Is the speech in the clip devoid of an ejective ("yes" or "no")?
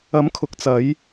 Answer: yes